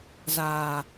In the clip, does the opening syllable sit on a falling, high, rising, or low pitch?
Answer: low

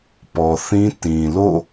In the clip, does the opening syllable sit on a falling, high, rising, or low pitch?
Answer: low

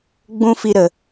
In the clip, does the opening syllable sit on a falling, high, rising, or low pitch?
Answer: high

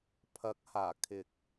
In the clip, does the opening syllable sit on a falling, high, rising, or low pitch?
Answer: rising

